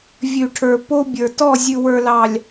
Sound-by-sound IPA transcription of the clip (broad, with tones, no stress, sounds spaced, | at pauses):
vʲ ʉ˨ ʈʰ ə˞˨ p o˦ bʲ ə˞˨ t ɔ˦˨ zʲ ʉ˨ w ə˞˨ l ɑ˨ lʲ